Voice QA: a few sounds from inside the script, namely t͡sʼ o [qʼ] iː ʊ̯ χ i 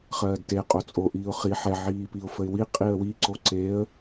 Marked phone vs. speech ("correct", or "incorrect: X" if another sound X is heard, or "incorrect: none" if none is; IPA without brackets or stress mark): incorrect: ʔ